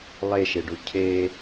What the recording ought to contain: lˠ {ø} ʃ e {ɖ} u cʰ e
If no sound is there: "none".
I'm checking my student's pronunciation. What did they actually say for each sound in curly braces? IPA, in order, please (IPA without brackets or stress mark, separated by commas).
e, ɖ